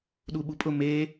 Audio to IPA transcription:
ɗ u ɓ u pʼ ʊ m e

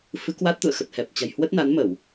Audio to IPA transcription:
f ɨ˨˦ k w a˦˥ t̚ t̪ ṵ˧˨ ə̯ x ə˨˩ t̚ h ɛ˨˩ p̚ t͡ɕ a̤˨˩ j h w ə˦˥ t̚ n a˨˦ n m ə˧˩˨ w

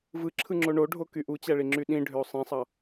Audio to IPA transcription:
v ɯ ǁʰ ɯ ŋ͡ǁ o ɳ o ɖʱ o k y ʔ u t͡ɕ æ ɭ i ŋ͡ǁ y ɗ ĩ ɖʱ ø o̯ sˤ ĩ sˤ ɑ

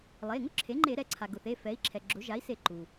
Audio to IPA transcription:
lˠ e˩˧˩ ŋ ʊ˥ ǁʰ e˩˥ ŋ͡ǃ e˧˩˧ ɾ ɛ˩˥ ǀʰ a˩ ɡ ʊ˩ θ e˩˧˩ f ɛ˩˥ i̯ ǁʰ ɛ˩ ɡ͡ǁ ʊ˩˥ ʒ a˩˥ i̯ s e˧˩˧ ǃ u˩

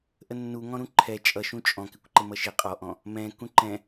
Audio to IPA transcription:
ʔ ə nː u ŋ ɔ̃ ɾ ũ ǃʰ ɛ t͡ʃʼ ʌ ʃ ũ t͡ʃʼ ɔ̃ k ɪ kʷ ǃ ɪ m ʌ ʃ ɪ qʼ ɔ ʔ ɔ̃ | m ɛ̃ k ũ ǃ ɛ̃

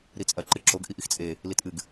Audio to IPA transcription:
ɾ i t͡sʼ ɐ ǃ ɨ ǁ o ɡ ʔ i ʔ i x t͡sʼ e | l i t ʔ ɨ ɡ

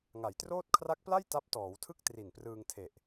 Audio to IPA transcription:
ŋ a˩˦ j t r oː˥˩ t̚ kʰ r a˦˥ k̚ p l a˥˩ j t a˦˥ p̚ t ɔː˩˦ w tʰ ɯ˥˩ k̚ t r i˨˩ n p r ɯː˧ ŋ tʰ e˨˩ ʔ

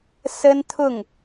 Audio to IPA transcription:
s ə˥ n t̪ʰ ʊ˥˩ ŋ

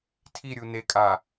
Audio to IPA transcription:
tʰ i ɾʲ u n e kʼ a

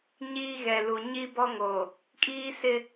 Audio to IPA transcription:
ɲ iː˦ ɣ ɛ˨ l u˨ ɲ i˦ b ɔ˦ ŋ o˨ | kʼ iː˦ s ɪ˦

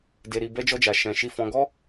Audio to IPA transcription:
d e˧ ɾ i˧ b ɛ˦ d͡ʒ ɔ˦ d͡ʒ a˧ ʃ ɛ̃˧ ʃ i˧ f ɔ̃˧ ɡ ɔ˦

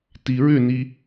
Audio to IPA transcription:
t i ɹ ʏ n i

